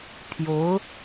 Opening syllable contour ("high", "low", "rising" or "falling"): rising